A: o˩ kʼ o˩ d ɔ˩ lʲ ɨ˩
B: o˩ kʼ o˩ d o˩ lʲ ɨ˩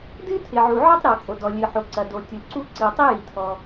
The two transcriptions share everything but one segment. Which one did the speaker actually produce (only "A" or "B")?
A